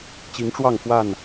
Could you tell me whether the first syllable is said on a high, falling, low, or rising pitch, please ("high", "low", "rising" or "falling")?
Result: rising